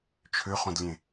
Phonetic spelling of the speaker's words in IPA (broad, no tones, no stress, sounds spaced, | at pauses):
t͡ʃʰ ø χ õ d lʲ ẽ